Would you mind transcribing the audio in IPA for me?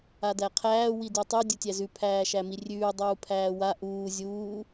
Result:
a d æ qʰ æː w i d ʉ tˤ u dʲ u tʲ æ z ʉ pʰ æː ʃ æ m i rʲ ʉː dˤ uː pʰ æː w a ʔ uː zʲ uː

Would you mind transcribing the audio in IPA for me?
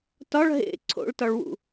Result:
t ɒ ɭ ɦ ḛ ǀʰ o̰ ɭ t ɒ ɭ w ṵ

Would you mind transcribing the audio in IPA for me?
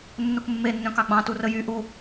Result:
nː u k mː e nː œ̃ k ɑ ɡ͡b ɑ̃ t u r ə j y ʔ u

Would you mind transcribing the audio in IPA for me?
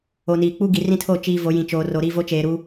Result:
o˨ n iː˨ k͡p u˦ ɡ i˨ r ĩ˦ tʰ o˦˨ t͡ʃ iː˨ v o˨˦ j ĩ˨ t͡ʃ oː˨ r o˨ ɾ i˦˨ v o˦ t͡ʃ eː˨ ɾ u˦

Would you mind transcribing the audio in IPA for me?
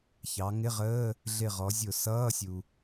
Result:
ç ɑ˩˧ ŋ ɪ˧˥˧ ʁ əː˧˥˧ | ɮ ɪ˧˩ ʁ ɔ˩˧ zʲ ʊ˧˩˧ s ʌː˧˥˧ sʲ u˩

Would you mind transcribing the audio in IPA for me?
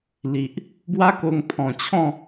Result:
l i˨ ʔ | b w a˦ k o˧ ŋ pʰ ɔ̃˨˩ t͡ɕʰ ɔ̃˥˧

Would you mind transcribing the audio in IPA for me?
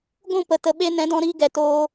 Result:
ɡʷ ũ˦˨ p ə˨ t ə˨ ɓ e˧ n ɛ̃˨˦ d ɔ̃˧ ɾ iː˧ ɡ ɛ˨ t oː˧

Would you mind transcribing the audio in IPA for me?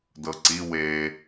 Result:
d ɤ ǀ i w e

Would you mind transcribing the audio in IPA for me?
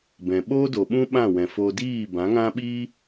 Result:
b ɛ̃˨ ɓ o˦ d o˨ ɓ ũ˦ ɓ ã˦˨ w ɛ̃˨ f o˧ d iː˦˨ b ã˨˦ ŋ ã˦ ɓ iː˦

